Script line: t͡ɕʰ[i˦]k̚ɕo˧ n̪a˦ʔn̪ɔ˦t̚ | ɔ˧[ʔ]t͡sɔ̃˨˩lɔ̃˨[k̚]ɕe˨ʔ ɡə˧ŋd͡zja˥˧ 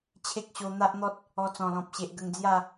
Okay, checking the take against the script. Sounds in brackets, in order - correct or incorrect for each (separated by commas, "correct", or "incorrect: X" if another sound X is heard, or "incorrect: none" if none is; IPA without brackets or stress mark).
incorrect: e˦, incorrect: none, incorrect: p̚